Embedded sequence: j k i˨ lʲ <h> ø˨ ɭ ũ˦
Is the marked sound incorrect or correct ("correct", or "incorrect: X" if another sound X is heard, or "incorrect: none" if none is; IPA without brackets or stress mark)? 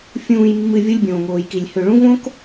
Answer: correct